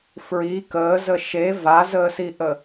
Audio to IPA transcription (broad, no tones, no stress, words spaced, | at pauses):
fɹi kəːzə ʃe vazəːsiʔə